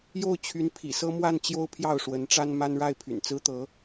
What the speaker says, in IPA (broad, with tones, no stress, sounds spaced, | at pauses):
j o˥˩ ʊ̯ t͡ɕʰ y˧˥ n pʰ ḭ˨˩ s ɤ˥ m w a˥˩ n t͡ɕ j o˥ ʊ̯ pʰ j ɑ˥˩ ʊ̯ ʂ w ə˧˥ n ʈ͡ʂ a˥ n m a˥ n ɻ a˥˩ ɪ̯ pʰ y̰˨˩ n t͡s ɹ̩˥ t̪ ɤ˧˥